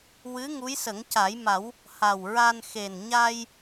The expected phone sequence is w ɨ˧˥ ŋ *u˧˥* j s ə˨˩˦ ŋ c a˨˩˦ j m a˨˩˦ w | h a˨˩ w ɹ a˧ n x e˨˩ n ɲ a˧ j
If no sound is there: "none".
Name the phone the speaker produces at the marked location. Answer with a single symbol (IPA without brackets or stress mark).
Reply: u˧˥